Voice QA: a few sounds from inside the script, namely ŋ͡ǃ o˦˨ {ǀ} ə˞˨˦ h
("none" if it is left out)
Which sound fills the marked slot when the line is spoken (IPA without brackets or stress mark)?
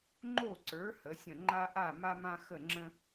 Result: ǀ